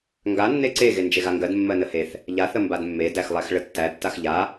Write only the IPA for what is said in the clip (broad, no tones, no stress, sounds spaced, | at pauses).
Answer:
ŋ ɡ a nː e ǀ e ɣ e n d͡ʒ e ɣ a ŋ ɡ ɜ d mː ɜ n ə h e θ | ʎ a θ ə m b a d mː e d æ x lˠ æ x ɭ ə tː æ tː a x ʎ a